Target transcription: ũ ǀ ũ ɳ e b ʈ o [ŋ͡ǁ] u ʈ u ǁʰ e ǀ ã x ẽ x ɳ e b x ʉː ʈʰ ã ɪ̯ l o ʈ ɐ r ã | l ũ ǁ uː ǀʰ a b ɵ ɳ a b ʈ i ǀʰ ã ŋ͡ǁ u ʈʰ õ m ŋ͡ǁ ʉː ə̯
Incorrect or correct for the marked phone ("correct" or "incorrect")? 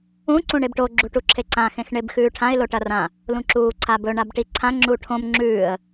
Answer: incorrect